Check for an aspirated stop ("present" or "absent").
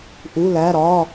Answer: absent